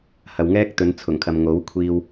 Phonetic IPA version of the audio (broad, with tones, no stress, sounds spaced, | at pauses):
h ɐ˨ w ŋ ɛː˥ k̚ t̪ ɵ˨˧ n t͡sʰ ʊ˨˩ ŋ kʰ ɐ˨ m ŋ o˨˥ w kʷʰ iː˧ w